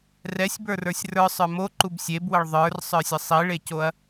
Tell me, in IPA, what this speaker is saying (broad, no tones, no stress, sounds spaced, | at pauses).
r ɛ sʲ b ə˞ r ə˞ sʲ r ə˞ sˤ ə˞ m o ǃ u b sʲ e b w ə ɭ ðˤ ə˞ r sˤ ə˞ sʲ ə sˤ i ɭ e c o ɐ̯